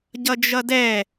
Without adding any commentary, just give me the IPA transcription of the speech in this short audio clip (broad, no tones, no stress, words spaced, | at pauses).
ɟʌd͡ʒʌdɛ